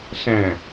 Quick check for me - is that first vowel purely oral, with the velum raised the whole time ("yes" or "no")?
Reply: no